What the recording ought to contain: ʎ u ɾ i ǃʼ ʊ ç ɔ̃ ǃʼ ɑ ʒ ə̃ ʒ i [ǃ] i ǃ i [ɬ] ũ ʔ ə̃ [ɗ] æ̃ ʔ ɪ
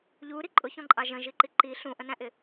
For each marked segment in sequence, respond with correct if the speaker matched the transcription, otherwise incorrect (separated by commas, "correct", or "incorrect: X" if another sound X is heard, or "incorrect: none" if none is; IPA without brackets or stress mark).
correct, correct, incorrect: n